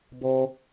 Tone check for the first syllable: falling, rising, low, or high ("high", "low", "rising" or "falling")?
high